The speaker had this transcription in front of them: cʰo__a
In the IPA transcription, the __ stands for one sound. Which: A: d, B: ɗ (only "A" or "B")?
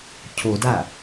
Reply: A